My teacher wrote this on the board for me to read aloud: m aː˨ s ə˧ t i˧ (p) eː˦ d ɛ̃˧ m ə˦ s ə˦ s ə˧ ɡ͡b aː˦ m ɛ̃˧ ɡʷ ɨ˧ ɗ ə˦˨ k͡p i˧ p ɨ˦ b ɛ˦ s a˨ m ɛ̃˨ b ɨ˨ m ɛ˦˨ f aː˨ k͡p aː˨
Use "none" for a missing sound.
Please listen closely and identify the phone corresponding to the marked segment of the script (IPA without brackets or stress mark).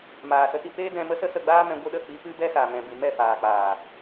p